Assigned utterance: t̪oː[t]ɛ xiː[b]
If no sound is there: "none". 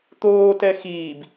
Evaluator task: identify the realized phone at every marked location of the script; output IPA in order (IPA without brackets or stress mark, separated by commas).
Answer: t, b